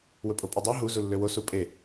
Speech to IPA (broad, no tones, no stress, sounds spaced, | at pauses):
w ɵ pʼ o pʼ ʉ dˤ ɑ ɦ u z u lː ø w o s u pʼ e